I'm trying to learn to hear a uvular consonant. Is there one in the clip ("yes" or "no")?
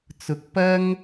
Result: no